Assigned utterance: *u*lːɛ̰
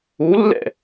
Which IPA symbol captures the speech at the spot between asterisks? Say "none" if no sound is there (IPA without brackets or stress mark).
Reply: u